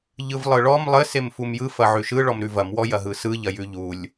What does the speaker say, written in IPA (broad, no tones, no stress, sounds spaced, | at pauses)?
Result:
ʎ ɯ v lˠ ɯ ɭ ɔ m lˠ ɘ s e m f u m j ɯ f ɐ ʕ ʉ ʃ ɯ ɭ ɔ m ɾ ʉ v ɐ m w ɔ j ɐ ɦ ɯ s ɯ ʎ ɐ j ʉ ʎ u lʲ